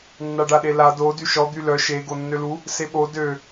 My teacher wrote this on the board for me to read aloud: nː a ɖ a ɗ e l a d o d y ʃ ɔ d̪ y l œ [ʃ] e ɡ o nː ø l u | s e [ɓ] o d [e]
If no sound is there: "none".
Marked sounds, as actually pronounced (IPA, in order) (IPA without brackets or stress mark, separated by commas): ʃ, ɓ, ø